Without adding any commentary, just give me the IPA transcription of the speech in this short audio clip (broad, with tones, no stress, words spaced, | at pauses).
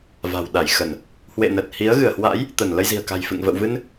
va̤˨˩wɗa˧˩jxə˧˩˨n | hwḛ˧˨nə˨˩t̚ hi˨˦ə̯ ɣɨ˧˩ə̯hwa̰˧˥j | t̪ə˧˩n lə˧jzi̤˨˩ə̯ka̤˨˩jfɨ̰˧˨ŋ və̰˧˨wvɨ˧n